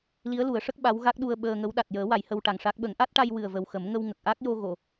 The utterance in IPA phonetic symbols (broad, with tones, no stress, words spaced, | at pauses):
li˧˥ə̯ lu˨˩˦ə̯ʂə˦˥k̚ ɓa˧˥wɣa˦˥k̚ɗu˧ə̯ ɓəː˧ŋə˧˥w ɗa˨˩t̚jəː˨˩˦ wa˨˩˦jhə˧wʈa˨˩ŋʂa˦˥k̚ ɓə˨˩˦ŋʔa˦˥t̚ʈa˧j wɨ˨˩ə̯və˨˩w xə˨˩˦mŋə˧w ŋə˨˩k̚ ʔa˦˥k̚jo˧ ɣo˨˩˨